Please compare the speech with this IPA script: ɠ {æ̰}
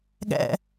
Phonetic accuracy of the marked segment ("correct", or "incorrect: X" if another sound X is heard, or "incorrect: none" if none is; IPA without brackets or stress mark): correct